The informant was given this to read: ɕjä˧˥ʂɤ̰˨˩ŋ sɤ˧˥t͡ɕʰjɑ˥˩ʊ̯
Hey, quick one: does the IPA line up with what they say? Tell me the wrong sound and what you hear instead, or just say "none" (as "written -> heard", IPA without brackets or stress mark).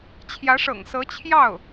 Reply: ɕ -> t͡ɕʰ